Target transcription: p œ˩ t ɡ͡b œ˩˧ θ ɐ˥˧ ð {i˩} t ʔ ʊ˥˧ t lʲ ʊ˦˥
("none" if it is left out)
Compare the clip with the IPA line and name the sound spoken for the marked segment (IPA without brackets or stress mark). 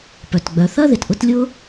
ɪ˩